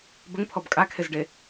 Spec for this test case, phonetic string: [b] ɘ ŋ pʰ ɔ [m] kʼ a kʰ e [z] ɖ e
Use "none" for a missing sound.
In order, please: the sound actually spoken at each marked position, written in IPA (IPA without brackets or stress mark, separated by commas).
b, b, z